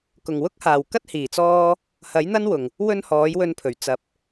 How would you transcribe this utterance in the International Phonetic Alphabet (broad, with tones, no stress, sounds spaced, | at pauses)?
k ʊ˨˩ ŋ w ʊ˥ k̚ h aː˨˩ w k ɐ˥ t̚ h iː˨˩ t͡s ɔː˥ | h ɐ˨˥ j n̪ ɐ˥ n w ʊ˨˩ ŋ | w ɵ˥ n h ɔː˨˥ j w ɵ˧ n pʰ ɵ˨˩ ɥ t͡s ɐ˨ p̚